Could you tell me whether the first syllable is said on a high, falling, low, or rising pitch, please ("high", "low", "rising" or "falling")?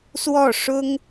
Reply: falling